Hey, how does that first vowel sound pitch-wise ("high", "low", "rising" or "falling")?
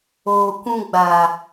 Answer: low